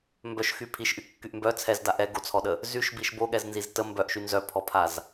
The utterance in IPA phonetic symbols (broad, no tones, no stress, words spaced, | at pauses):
mbœʃxy pʰiʃʔykːyʔ mbœ t͡sʰɛzda ʔɛɡot͡sʰɔɗə | zyʃbiʃ boɠɛznziz tə mbœʔʃy nzœpʰɔpʰaz